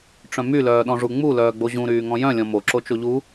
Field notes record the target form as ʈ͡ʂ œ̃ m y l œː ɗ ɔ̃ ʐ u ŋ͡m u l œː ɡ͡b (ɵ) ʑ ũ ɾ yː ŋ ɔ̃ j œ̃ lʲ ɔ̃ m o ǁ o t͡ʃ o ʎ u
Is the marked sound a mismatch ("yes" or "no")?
yes